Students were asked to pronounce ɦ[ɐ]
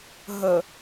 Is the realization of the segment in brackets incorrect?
yes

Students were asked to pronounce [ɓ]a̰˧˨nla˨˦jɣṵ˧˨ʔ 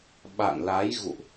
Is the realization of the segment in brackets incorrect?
no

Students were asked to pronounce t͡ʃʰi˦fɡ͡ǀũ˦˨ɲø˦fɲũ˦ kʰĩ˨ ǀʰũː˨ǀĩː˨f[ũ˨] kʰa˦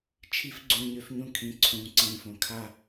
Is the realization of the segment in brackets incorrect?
yes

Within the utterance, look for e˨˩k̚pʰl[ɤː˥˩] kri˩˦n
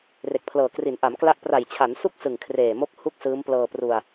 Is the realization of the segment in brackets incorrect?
yes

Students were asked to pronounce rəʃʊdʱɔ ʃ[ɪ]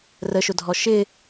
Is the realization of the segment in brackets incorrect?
no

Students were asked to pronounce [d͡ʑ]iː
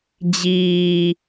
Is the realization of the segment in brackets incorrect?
no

